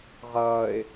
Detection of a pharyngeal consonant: absent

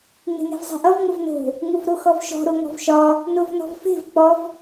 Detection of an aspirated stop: absent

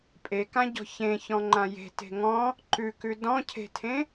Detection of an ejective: present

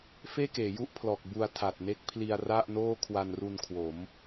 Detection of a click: absent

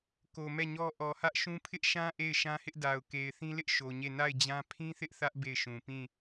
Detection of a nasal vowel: present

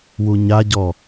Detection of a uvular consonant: absent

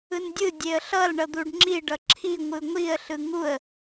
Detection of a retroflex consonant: present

